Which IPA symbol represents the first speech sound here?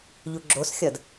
ʎ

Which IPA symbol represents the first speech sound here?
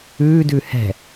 ʉː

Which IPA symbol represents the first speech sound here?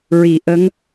ɹ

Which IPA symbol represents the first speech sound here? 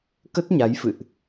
k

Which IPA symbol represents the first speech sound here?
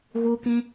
ɣ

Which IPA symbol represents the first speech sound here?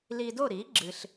l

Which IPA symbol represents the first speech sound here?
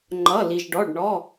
ŋ͡ǃ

